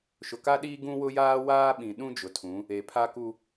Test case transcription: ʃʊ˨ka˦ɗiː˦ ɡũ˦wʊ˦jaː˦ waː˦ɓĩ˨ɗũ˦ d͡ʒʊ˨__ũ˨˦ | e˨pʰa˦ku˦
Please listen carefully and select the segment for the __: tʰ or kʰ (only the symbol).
tʰ